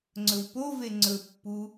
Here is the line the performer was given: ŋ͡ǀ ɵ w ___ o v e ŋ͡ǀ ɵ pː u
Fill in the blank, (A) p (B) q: A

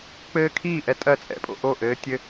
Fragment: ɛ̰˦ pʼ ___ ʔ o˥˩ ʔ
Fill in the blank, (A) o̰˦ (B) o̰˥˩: A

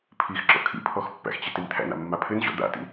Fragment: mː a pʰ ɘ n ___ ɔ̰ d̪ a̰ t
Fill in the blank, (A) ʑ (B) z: A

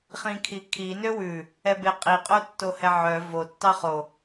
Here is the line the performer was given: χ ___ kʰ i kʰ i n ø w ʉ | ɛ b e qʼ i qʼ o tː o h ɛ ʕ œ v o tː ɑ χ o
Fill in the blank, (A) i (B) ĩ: B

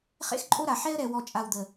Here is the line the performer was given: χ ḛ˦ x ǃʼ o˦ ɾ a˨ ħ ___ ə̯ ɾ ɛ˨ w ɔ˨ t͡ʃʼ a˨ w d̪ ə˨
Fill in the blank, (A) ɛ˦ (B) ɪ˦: A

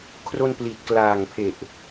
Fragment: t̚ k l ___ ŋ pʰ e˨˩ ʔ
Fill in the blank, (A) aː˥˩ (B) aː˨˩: B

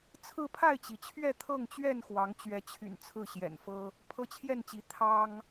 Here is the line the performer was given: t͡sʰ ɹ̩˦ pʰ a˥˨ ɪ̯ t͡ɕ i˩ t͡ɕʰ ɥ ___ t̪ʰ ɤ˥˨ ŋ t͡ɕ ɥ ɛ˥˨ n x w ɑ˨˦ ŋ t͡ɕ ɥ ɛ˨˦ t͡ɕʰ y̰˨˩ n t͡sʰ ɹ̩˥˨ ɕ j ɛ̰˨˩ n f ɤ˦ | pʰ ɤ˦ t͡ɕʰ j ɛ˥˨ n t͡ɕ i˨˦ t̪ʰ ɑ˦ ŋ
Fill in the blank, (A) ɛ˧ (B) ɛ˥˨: B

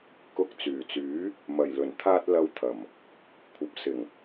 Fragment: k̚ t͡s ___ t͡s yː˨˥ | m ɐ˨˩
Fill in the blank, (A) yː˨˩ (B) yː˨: A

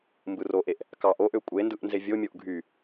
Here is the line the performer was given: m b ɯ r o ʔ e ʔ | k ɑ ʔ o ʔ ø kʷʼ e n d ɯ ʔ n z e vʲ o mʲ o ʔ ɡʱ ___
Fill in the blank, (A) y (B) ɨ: A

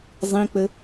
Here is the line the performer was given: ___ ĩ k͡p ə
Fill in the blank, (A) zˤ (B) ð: A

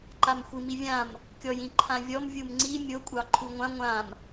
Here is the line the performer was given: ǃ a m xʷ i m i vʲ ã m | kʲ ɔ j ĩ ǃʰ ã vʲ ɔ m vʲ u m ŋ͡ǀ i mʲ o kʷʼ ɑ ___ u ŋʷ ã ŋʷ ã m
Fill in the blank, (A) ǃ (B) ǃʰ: B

